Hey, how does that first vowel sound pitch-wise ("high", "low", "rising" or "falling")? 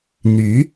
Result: rising